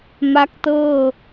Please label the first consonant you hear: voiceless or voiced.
voiced